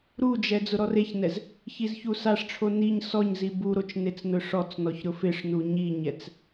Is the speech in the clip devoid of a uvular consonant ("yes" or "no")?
yes